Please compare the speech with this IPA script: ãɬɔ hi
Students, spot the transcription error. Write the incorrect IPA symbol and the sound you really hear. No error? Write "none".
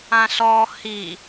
none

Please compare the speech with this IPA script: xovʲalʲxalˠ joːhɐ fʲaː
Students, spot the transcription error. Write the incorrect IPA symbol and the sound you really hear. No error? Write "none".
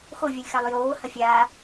none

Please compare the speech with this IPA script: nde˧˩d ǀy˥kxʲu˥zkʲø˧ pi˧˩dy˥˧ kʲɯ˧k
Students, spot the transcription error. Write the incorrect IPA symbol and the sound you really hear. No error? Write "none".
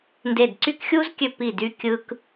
none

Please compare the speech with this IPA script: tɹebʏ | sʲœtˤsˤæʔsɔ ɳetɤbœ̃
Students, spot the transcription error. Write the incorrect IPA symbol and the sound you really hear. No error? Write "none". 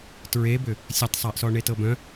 none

